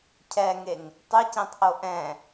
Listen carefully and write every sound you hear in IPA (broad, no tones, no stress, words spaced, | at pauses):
cʰɛŋeŋ | tˤɨcĩtˤʔo ʔɛ̃